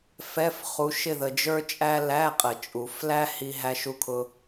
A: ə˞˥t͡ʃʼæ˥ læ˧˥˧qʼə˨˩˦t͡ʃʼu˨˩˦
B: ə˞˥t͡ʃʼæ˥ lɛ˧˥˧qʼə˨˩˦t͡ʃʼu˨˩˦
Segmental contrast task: A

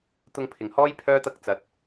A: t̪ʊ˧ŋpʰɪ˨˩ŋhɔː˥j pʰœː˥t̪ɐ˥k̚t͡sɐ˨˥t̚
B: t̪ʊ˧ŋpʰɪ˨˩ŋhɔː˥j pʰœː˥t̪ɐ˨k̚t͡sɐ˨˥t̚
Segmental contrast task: A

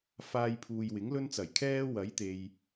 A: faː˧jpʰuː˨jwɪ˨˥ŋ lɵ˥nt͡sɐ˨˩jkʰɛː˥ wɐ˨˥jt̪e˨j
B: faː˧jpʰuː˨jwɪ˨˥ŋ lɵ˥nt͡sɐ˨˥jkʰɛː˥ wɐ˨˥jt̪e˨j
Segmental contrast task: A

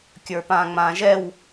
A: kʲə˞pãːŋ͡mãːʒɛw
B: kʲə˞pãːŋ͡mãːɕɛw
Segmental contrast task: A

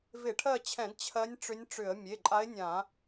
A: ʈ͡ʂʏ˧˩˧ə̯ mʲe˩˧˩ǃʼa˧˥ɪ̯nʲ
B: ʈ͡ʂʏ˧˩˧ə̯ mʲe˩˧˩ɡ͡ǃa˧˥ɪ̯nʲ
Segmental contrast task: A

